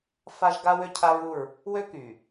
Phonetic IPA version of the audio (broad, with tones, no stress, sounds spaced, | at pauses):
f a˦ ʒ ɡ a˦ w ø˦ cʰ a˦ ɹ u˦˨ ɹ | w ø˦ k y˨